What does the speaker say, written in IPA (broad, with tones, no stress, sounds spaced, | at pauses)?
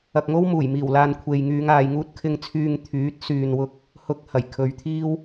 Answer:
ɐ˧ k̚ ŋ o˥ w m uː˨˩ j m iː˨˩ w l aː˨ n kʷʰ e˨ j ŋ yː˨˧ ŋ aː˨ j ŋ uː˧ t̚ kʰ ɪ˨ ŋ t͡sʰ yː˨ ŋ t̪ʰ yː˨˥ t̚ s yː˨ n w ʊ˧ k̚ | h ʊ˧ k̚ h ɐ˨˩ j kʰ ɵ˨˧ ɥ t̪ʰ iː˥ w